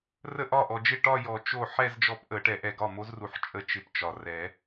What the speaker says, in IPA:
r ə˥˩ ʔ ɒ˥˩ ʔ ɔ˨ d͡ʒ ɪ˥˩ ʈ ɒ˥˧ j ɔ˨˩˦ t͡ʃ o˥˩ ħ ɛ˥˧ z d͡ʒ ɔ˧˥ p ʔ ə˨˩˦ ʈ ɛ˨˩˦ ʔ ɛ˨ ɡ ɒ˥˩ m o˧˥ z r u˨ ħ t͡ʃʼ ə˥˩ t͡ʃ ɪ˧˥ p t͡ʃ ɒ˨ r ɛ˨˩˦

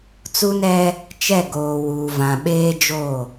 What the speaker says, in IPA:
t͡s u˦ n ɛ˦ | t͡ʃ ɛ˦˨ ɡ oː˨ w uː˨ v ã˨ ɓ eː˦ d͡ʒ o˦˨

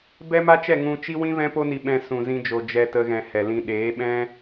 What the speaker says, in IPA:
b ɛ˦ m a˦ t͡ʃ ɛ˦˨ ŋ ũ˧ t͡ʃ i˦ w ĩ˦ v ɛ̃˦ p o˦ n i˧ ɓ ɛ̃˧ s ũ˨ z ĩ˧ d͡ʒ o˨ d͡ʒ ɛ˧ t ə˧ ɣ ɛ̃˨ h ɛ˨ l ĩ˧ ɗ eː˨˦ ɓ ɛ̃˦

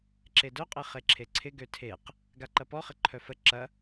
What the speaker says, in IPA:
ǁ e d œ qʼ e χ e ǁʰ e ǀʰ ɪ ɡ ø tʰ e q | ɡ a ǃ ɐ p ɔ χ ɪ ǃʰ œ f ə ǁ ɐ

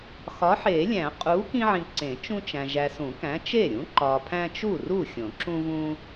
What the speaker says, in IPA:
x ɒ˨˥ ħ e˨˩˦ lʲ æ̃˨˩˦ qʼ u˨˥ k ĩ˦ ʕ ĩ˨ ǀ ẽ˨˩˦ t͡ʃ ũ˦ t͡ʃ æ̃˨ ʒ æ˨ s ũ˨˩˦ k æ̃˨˥ t͡ʃ e˥˩ ɾʲ ũ˨˥ ǃ ɒ˨ pʰ æ̃˦ t͡ʃ u˥˩ r u˥˩ xʲ õ˨˩˦ ǁ ũ˦ v ũ˦

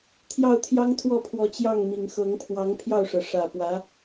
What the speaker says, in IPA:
t̪ʰ j ɑ˥˩ ʊ̯ t̪ʰ j ɑ˥ ŋ t̪ʰ w ɔ˥˩ pʰ w ɔ˧˥ t͡ɕ j ɑ˥˩ ŋ m i˨˩ ŋ x ɤ˧˥ ŋ pʰ w ɑ˧˥ ŋ pʰ j ɑ˥˩ ʊ̯ ʂ ɤ˩ ʂ ä˨˩ p w ä˧˥

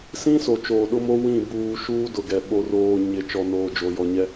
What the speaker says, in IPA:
s ĩ˦ s o˨ t͡ʃ oː˨ ɗ ʊ˦ m o˦ w ĩ˦˨ b uː˨ ʃ uː˦ d ʊ˨ ɡ ɛ˨ ɓ o˨ r oː˨ ɲ ɪ˨ t͡ʃ ɔ˨ n oː˨ d͡ʒ o˨ j ɔ˨ ɲ ɛ˦

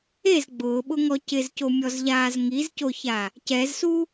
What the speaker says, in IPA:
e z ɡ͡b ʊː ɓ ʊ ŋ ɔ c ɪ z c o mʲ ɔ z ʎ aː z ŋ i z c o ç a | c ɛ z s u

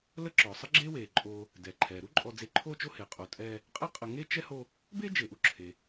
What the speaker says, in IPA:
l ə˦ ǁ ɔː˩ sˤ ə˥ ɡ͡ǁ eː˥ w eː˩ ǃʼ oː˨ | d ɛː˩ ǃʰ ɛː˩ ɾ u˥ ǃʼ ɔ˨ d͡z e˨ ǃʰ oː˦ t͡ʃ o˦ h e˩ qʼ o˨ tʼ ɛː˦ | qʼ ɛ˥ qʼ ə˨ ŋ e˥ t͡ʃ ɛ˥ h o˦ | b eː˥ d͡ʒ e˩ ʔ u˨ ǁʰ e˩

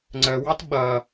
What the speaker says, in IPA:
ŋ͡ǀ ə w ɑ t ɓ ʌ

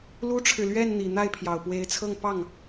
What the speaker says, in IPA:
l u˥ ʈ͡ʂʰ ɻ̩˨ l ɥ ɛ˥˩ n n̪ i˨˩ n̪ a˥˩ ɪ̯ pʰ j ɑ˨˩ ʊ̯ p w e˧˥ ɪ̯ t͡sʰ ɤ˥˧ ŋ p ɑ˥˩ ŋ

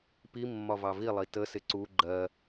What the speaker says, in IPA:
p i mː ɒ v ɑ v i lˠ i t ə s ɪ ǀ u ɡ͡ǃ ɜ

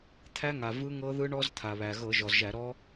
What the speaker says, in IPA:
t̪ʰ æ˦˥ ŋ a˩ v ɯ˦˥ ŋ ɤ˦˥ ð ɯ˦˥ ɳ ɔ˦˥ z t̪ʰ a˩ β æ˩ ɣ ɤ˧˩˧ ʒ ɔ˩ z ʒ æ˧˩˧ ɾ ɔ˦˥

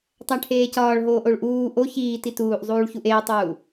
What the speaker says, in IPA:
tˤ æ ʈʰ eː c ɒː ɭ ɦ oː ʔ o ɭ ʔ uː ʔ o ç iː t i t uː ʔ zˤ uː ɭ ç u ʔ eː tˤ uː

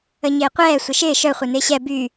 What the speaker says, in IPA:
ə ɲ ɪː qʷ ɛː sʷ ɪ ʃ ɪː ʃ œ χʷ œ n ɪː ɕ ɛ b y

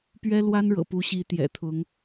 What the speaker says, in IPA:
p ɥ ɛ˥ l w a˥ n ɻ ɤ̰˨˩ p u˧˥ ɕ i˧˥ t̪ j ɛ̰˨˩ t̪ʰ ʊ˧˥ ŋ

